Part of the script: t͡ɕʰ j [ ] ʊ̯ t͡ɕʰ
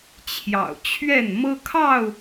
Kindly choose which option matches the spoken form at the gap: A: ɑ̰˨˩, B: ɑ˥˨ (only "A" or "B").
A